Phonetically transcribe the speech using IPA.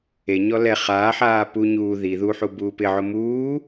e ɲ ɔ l ɛ χ aː ħ aː p u ɲ uː ð i ð u ħ u b uː p ɪ ʕ ʊ m uː

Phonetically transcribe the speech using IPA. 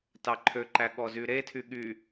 t ɑ ǃʰ ø ǃ æ ɠ ɔ z y ɾ e tʰ y ɠ y

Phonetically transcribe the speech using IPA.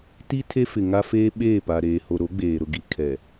t i˦ tʰ e˦ f ɪ˨ ŋ a˦ f eː˦ ɓ eː˦˨ p a˨ ɾ eː˨ h o˨ ɾ o˨˦ ɡ͡b eː˨ ɾ ʊ˨ ɡ i˨ kʰ ɛ˨

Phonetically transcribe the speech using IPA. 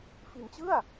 f i˨˩ n t͡ɕ ɯ˥˩ a̯

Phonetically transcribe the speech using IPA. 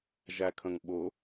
ʒ æ kʰ ə̃ ŋ ɓ ʊ

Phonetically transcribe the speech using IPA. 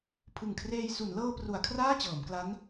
pʰ ɯ˨˩ ŋ kʰ r eː˧ j s u˩˦ n l ɤː˧ p r u˩˦ a̯ kʰ r aː˥˩ t͡ɕ ɤː˩˦ m k l a˦˥ n

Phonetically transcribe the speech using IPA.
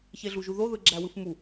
ç e ɮ u ʒ u ð o ð ɯ ɡ͡ǁ æ w ɯ f m u

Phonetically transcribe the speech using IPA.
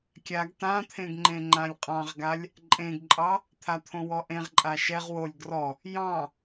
kʲ a ɡ t ã t̪ʰ ẽ ɡ ŋ͡ǃ ẽ ŋ͡ǃ ã lʲ qʼ ɑ̃ ʁ ɡ a lʲ | ǃʼ ẽ ɡ ǃʼ ɑ | t̪ʰ a t̪ʰ õ w ɔ ʔ ẽ ʁ ǃʼ a ʃ ɛ ʁ w o lʲ ɡ r ɔ | j ɑ̃

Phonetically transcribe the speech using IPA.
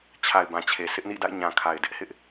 t͡ɕʰ a˨ ɪ̯ b ã˨ t͡ɕʰ e˨ sʰ ɪ˦ ʔ n ḭ˦˨ d a̰˦˨ ɪ̯ ɲ ã˨ kʰ a˨ ɪ̯ d ɪ˦ ʔ h ɪ˦ ʔ

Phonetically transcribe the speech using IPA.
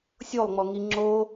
sʲ o lˠ ŋ͡m ɔ ŋ i ŋ͡ǁ o

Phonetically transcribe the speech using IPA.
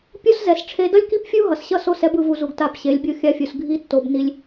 pʲ o˦ s z ɛ˨ s ʈ͡ʂʰ e˧ d ʌ˦ lʲ k i˦ p fʲ u˦ ɦ ʌ˨ s ɕ ʌ˦ s o˦˨ s ɛ˧ b ɯ˨ v u˨ z u˨ ɡ t a˦˨ p ɕ e˨˦ lʲ bʲ o˦ xʲ a˧ fʲ u˨ s ɡʱ i˧ tː o˨ b n i˧ lʲ

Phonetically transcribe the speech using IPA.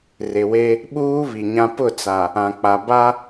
r ɪ˨ w e˦ | ɓ uː˦ β i˨ ɲ ã˦ p ʊ˦˨ t͡s a˨ | ã˨ k͡p a˨ b a˦

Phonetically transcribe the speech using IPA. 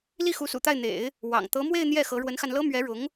l i˥˩ x u˧˥ s ṵ˨˩ t̪ a˥˩ ɪ̯ n̪ ḛ˨˩˦ ɪ̯ | w ɑ̰˨˩ ŋ t̪ ɤ˧˥ m w e˥˧ ɪ̯ n̪ j ɛ˥˩ x ɤ˧˥ ɻ w ə˧˥ n x a˧ n l ɤ˥ m ɥ ɛ˧˥ ɻ ʊ˧˥ ŋ

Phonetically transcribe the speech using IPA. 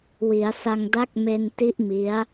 w i˩˦ a̯ s a˧ ŋ d a˦˥ k̚ m e˧ n t i˦˥ ʔ m i˦˥ a̯

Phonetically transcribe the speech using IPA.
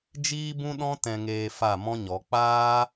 d͡ʒ iː˦ b ũ˦ ɗ ɔ̃˦ t ɛ̃˧ ŋ eː˧ f a˦˨ m ɔ̃˦ ɲ ɔ˨˦ k͡p aː˦

